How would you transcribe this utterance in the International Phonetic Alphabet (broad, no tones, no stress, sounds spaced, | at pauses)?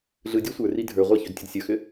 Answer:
ɮ ɯ dʲ ɔ sʷ ə˞ r i dʱ ə˞ ʁʷ i ç ø d tʲ ɯ d sʲ ə˞ x ʏ